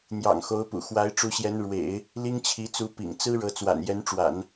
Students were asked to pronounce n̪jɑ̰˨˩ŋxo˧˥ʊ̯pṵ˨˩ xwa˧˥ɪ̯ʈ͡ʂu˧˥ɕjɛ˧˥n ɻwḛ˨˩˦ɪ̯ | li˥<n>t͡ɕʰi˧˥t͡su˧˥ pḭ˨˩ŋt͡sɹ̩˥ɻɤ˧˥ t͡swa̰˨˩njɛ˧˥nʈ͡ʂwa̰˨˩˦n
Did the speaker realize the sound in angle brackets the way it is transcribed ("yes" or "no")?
no